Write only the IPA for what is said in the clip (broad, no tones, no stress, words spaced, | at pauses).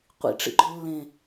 qʷḭʈ͡ʂḭɡ͡ǃo lːẽ